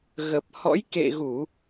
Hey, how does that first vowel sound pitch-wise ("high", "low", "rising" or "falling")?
low